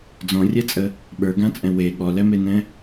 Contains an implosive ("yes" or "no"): yes